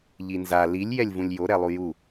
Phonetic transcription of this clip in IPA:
ʎ i n z a l i lʲ j ɛ lʲ v ũ lʲ j o ɾ ɛ lˠ u j u

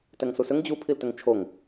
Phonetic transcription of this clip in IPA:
t ɛ ŋ s u s ʏ ŋ d͡ʑ u pʰ i l t ʏ ŋ t͡ʃʰ o ŋ

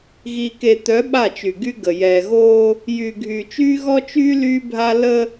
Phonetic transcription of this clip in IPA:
ɣ i˨ k e˨ t̪ œ˨˦ ɓ a˦˨ t͡ʃ y˨ ɡ y˦ ɡ ə˨ j ɛː˨ ɣ oː˦ | j yː˨ ɡʱ yː˨ t͡ʃ yː˦ ɣ ɔ˦ t͡ʃ yː˦ l yː˦ bʱ a˦ l ə˦

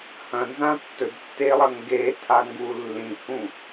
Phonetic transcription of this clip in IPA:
h ɐ̃ n z ã tː ɵ d tː e lˠ ɐ ŋ ɡ e tʰ a ŋ ɡ u lː ĩ h ũ

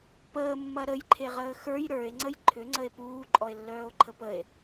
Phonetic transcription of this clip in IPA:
p əː mː ɐ ɾ ə j ǃʰ e ʁ əː x ə˞ j ɾ ə˞ e̯ ŋ͡ǀ ə j ǃʰ ʏ ŋ͡ǀ ə e̯ p uː ǃʼ ɔ e̯ lː œː o̯ ǃʰ ə p ə e̯

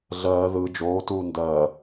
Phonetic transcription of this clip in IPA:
ɮ ɜː ð ɯ d͡ʒ oː t uː n d ɜː

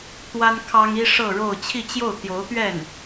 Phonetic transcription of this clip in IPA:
t̪ w a˥ n kʰ ɑ˥ ŋ i˥ ʂ ɤ˥˧ ɻ o˥˧ ʊ̯ t͡ɕʰ i˥˧ t͡ɕ j o˥˩ ʊ̯ t̪ j o˧˥ ʊ̯ t̪ ɥ ɛ˥˩ n

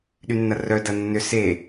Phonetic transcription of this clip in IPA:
ɗ y nː ɐ r œ d ɐ nː ʏ s e

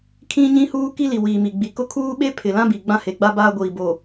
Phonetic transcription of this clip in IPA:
kʰ ĩ˦ ɲ ĩ˦ h uː˦ k i˦ l i˨ w iː˨ m i˨ ɡ͡b i˨ k ʊ˦ kʰ uː˦ ɓ e˦ pʰ ɪ˨ l ã˦ b i˨ ɡ͡b ã˦ h e˨ ɡ͡b a˦ b aː˦ ɡʷ iː˨ b o˨

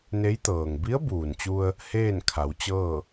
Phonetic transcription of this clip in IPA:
n e˧˥ j t̪ ɤː˩ ŋ b i˧˥ ə̯ b uː˩ n t͡ɕ u˧ ə̯ | h eː˥˨ n kʰ a˩˧ w t͡ɕ ɤː˥˨

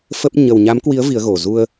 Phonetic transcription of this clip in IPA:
f ə˦˥ p̚ ɲ ə˨˩ w ɲ a˨˦ m k w i˨˦ ə̯ v i˨˦ ə̯ ɣ o˨˩ z u˧ ə̯

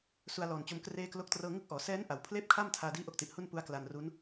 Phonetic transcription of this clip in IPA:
s u˧ a̯ l ɔː˨˩ n t͡ɕ o˧ m k r eː˥˩ k l o˥˩ k̚ t r ɤː˥˩ ŋ ɯ˥˩ k̚ ʔ ɔː˩˦ s ɛː˦˥ n ʔ a˩˦ w pʰ l eː˥˩ p̚ kʰ a˥˩ m tʰ aː˧ d iː˦˥ ʔ o˦˥ k̚ t i˨˩ ʔ h u˥˩ n p u˦˥ a̯ k l a˧ n r u˦˥ n

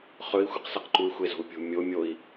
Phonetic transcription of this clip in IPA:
χ ɵ i̯ xʷ ɨ q s ɐ q ǃ u y̯ xʷ e z o̤ u̯ pʲ o̤ mʲ o mʲ o i̯

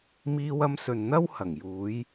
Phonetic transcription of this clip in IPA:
m iː˧ w ɐ˧ m s ɵ˨ n n̪ ɐ˥ w h ɐ˨˩ ŋ j uː˨˧ j

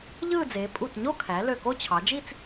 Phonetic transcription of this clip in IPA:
ʎ ɯː˥˧ d͡z eː˩˧ pʼ u˧˩ t ɲ o˥˧ kʰ æ˩˧ l ø˧˩ k o˥˧ t͡ɕʰ ɑ˩˧ d͡ʒ i˥˧ t͡s

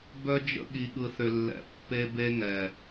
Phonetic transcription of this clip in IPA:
b œ˦ d͡ʒ ə̰˦ ɠ i˨ ɠ ɯ˨ θ ʏ˨ lː ɛ̰˨ pː e˦ b e˦ ŋ ɛ˨

